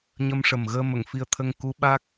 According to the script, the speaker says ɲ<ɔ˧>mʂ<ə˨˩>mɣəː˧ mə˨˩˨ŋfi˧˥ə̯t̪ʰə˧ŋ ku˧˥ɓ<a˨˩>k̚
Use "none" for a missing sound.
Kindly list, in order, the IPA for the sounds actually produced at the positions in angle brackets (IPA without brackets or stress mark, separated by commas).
ə˧, ə˨˩, a˦˥